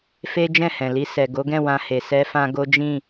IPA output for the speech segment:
f e˦ d͡ʒ ɛ̃˦˨ h ɛ̃˨ l i˧ s ɛ˨ ɡ o˨˦ ɡ ɛ̃˦˨ w ã˧ h e˨ s ɛ˧ f ã˧ ɡ o˦ d͡ʒ ĩ˦˨

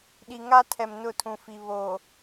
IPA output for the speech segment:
ɗ i˨ ŋ a˦ tʰ ɛ˨ m n ʊ˦˨ tʰ ũ˨ f i˨ β o˨

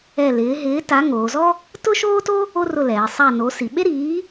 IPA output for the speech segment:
ɛ˦˨ l ɪː˨˥ ɦ ɪː˨˥ t a˨˥ ŋ oː˩˧ z ɔ˥ | t ʊ˥ ʃ oː˥ t o˥ | o˥ r ʊ˦˨ l ɛː˩˧ sˤ a˦˨ n o˨˥ s i˩˧ ɓ e˥ ɾ iː˨˥

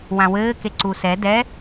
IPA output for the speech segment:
w ã w ɘː k e ǀ u s ɛ d ɛ

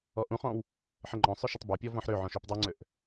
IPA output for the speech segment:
ɔ ʔ ũ χ ɔ̃ w | ħ ə ŋ͡ǃ ɔ̃ sˤ ø ʃ ə tˤ b ø pʲ ɔ v ɔ̃ ħ ɾ ø ʕ ɔ̃ ʃ ø p dˤ u ŋ͡ǀ ø ʔ

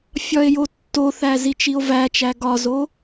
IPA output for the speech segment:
fʲ ɒ e̯ j o tː o θ æ z i t͡ʃ i o̯ v æ t͡ʃ æ ɡ ɒ z o

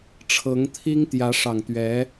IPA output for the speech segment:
ʈ͡ʂʰ ɤ˧˥ ŋ t̪ʰ i˥ ŋ t̪ j ä˧˥ ʂ ɑ˨˩ ŋ t̪ ɥ ɛ˧˥

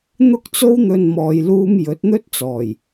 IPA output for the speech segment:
n̪ ʊ˧ k̚ t͡s o˧ w n̪ ɵ˨ n m ɔː˨ j l uː˧ m j ɵ˨˥ t̚ n̪ ɵ˥ t̚ t͡s ɔː˨˩ j

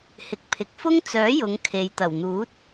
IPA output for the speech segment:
h ɪ˨ k̚ pʰ ɪ˨ k̚ f ʊ˥ ŋ t͡s œː˨˥ j ʊ˨˧ ŋ kʰ e˨ j t̪ ɐ˨˩ w n̪ uː˨˥ t̚

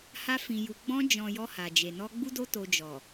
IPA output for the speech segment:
h a˧ f ĩ˨ j u˨ ɡ͡b ɔ̃˧ d͡ʒ ɔ̃˨ j ɔ˧ h a˨ d͡ʒ e˨ n ɔ˧ ɡ͡b u˧ d o˧ t o˨ d͡ʒ ɔ˨

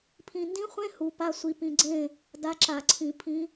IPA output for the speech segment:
pʰ ĩ˨˩ n d ĩ˧˥ χʷ ẽ˧˥˧ h u˧ p a˧˥˧ sʷ i˧ p ĩ˧ ɡ͡ǀ ẽ˥˨ | d a˧˥ ǁ a˧˩˧ ǀʰ ĩ˧˩˧ pʰ ĩ˧˥

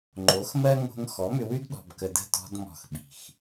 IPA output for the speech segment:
ŋ͡ǃ o˨˦ x m ɜ˦ ŋ o̤˧ ŋ x ɔ˨˦ m ʏ˧ w ʉ˦ d ɗ ɔ̤˨ b k ə˨ d ə̤˦˨ t ɔ̤˧ d m ɔ̤˨ x ɓ i̤˨ x

